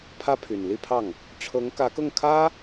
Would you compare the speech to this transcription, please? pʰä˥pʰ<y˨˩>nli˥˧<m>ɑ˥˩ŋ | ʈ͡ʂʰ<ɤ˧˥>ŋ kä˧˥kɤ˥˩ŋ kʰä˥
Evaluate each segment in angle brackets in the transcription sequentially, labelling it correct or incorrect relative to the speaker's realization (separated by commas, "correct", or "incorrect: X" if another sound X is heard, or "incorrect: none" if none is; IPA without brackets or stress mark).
correct, incorrect: pʰ, correct